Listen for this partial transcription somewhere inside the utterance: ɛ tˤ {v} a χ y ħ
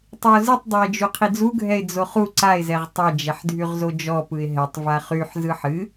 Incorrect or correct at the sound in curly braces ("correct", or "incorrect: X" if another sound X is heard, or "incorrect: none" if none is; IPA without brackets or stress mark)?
correct